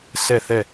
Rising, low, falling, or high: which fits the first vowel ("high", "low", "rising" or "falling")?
falling